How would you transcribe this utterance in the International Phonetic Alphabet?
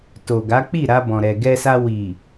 to˨ɡa˨˦ k͡pi˦˨ɾa˧bɔ̃˨ɾɛ˨ ɡɛ˧sa˧ wi˨

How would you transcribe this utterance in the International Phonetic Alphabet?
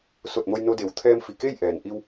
so˧˩t̚mo˧jno˧de˩˧w t̪ʰɛː˧mfi˩ ke˥˨jʔɛː˩n ʔi˧w

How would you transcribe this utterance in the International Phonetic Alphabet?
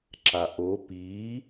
ǁaʔo pi

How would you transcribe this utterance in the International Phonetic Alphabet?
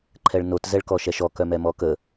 ǃʰɛɭnot zɛɭkɔʃɛʃɔ kœmɛmɔkə

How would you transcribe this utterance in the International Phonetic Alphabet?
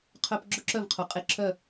qʰœ˧p ɡ͡ǁʊ˥˩ǁœ˥˩vqʰu˩qʼe˧˥˧ ǁʰœ˥˩

